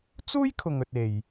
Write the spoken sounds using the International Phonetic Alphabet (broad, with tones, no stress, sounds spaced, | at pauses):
t͡s uː˥ j kʰ ʊ˨ ŋ ɵ˨ t̚ e˨ j